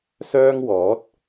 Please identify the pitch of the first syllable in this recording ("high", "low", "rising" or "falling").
high